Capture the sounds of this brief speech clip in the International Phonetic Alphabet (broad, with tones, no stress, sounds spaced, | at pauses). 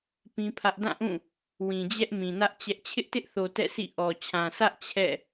p ĩ˦ pʰ ä˦ ʔ d ã˦˨ ʔ ũ˦˨ | w ĩ˨ d͡ʑ ɛ˦ ʔ m ĩ˨ n ä˦ ʔ t͡ɕ ɛ˦ ʔ t͡ɕʰ ɪ˦ ʔ t ɪ˦ ʔ θ o˨ t ɛ̰˦˨ sʰ ḭ˦˨ ʔ ɔ˨ t͡ɕʰ ã˨ s ä˦ ʔ t͡ɕʰ ɛ̰˦˨